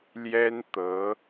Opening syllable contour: high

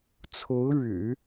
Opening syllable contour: rising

